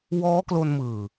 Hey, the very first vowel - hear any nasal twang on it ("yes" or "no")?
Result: no